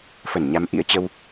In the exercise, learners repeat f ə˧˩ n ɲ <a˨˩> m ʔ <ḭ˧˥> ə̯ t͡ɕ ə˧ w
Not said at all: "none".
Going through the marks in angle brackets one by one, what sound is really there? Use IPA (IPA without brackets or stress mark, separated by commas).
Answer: a˨˦, ḭ˧˥